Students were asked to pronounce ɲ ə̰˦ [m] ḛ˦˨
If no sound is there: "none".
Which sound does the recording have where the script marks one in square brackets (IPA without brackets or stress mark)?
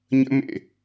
m